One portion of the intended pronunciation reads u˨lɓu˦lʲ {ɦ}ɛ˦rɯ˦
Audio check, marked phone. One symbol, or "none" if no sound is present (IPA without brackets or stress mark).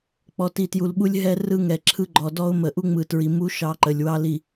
ɦ